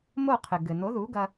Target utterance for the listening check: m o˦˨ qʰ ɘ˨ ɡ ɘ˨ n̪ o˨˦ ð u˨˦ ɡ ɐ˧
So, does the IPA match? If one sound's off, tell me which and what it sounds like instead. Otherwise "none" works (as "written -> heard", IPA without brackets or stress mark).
none